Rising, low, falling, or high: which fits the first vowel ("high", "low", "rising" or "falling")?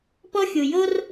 high